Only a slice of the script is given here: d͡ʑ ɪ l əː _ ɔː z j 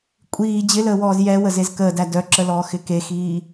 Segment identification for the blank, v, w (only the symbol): w